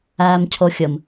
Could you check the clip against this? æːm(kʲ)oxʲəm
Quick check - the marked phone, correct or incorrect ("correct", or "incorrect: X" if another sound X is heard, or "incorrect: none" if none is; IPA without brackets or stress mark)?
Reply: incorrect: cʰ